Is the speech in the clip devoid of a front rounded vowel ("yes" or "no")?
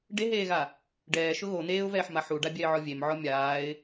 yes